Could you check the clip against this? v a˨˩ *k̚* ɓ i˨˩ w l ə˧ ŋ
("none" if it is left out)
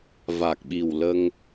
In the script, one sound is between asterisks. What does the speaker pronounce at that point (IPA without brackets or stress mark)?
k̚